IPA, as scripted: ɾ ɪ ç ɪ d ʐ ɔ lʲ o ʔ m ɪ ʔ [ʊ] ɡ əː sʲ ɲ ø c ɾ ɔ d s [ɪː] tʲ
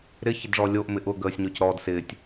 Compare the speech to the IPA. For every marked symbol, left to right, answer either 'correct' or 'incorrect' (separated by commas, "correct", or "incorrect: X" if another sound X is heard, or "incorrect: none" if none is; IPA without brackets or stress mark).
correct, correct